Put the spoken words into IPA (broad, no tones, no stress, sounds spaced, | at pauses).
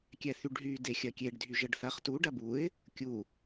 kʲ ɛ θ y ɖ ɦ y d e xʲ ɐ kʲ e ɖ dʱ y ʒ ə ɖ θ ɐ χ t u ɖ ɐ b u ɪ̯ | kʲ u